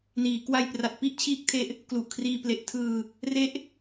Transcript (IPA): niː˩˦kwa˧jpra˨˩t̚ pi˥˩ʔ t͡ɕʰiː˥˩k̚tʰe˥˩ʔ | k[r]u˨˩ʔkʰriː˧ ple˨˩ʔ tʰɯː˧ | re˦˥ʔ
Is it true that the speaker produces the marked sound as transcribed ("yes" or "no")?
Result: no